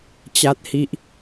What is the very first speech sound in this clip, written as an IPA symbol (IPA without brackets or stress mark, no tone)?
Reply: t͡ɕ